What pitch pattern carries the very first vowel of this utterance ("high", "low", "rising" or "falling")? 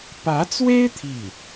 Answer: rising